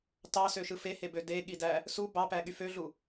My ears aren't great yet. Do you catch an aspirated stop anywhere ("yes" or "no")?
no